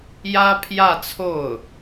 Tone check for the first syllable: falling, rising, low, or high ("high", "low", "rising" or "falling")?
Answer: high